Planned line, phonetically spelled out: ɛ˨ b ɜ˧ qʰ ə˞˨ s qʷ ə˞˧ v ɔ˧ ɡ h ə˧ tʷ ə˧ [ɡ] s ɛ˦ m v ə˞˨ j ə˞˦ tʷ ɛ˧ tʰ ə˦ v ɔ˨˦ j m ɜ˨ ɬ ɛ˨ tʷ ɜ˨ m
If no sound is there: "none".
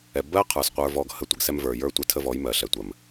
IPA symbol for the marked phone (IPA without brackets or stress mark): ɡ